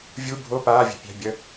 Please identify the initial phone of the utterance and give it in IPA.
vʲ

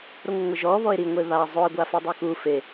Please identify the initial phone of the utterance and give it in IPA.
ɾ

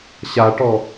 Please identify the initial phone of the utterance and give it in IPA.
ɕ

